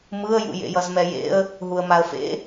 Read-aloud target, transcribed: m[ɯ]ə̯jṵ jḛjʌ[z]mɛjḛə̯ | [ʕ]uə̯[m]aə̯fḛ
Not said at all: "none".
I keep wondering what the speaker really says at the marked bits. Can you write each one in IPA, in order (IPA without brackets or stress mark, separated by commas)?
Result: ɯ, z, ɦ, m